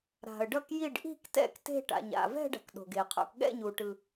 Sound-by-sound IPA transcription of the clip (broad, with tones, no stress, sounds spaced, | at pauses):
ɾ a̤˨ ə̯ ɖ ʌ˥˧ k j i˥˧ ɖ ʔ i̤˥˧ k t ɛ̰˥˧ k t e̤˥˧ ʈ a̰˨ ɲ a̰˨ v ɛ̤˥˧ ɖ a̤˨ k ɗ o̤˨ ɡ e˨ qʰ o̰˥˧ k ɠ ɛ̰˥˧ ɲ u˨ ʈ ɯ˨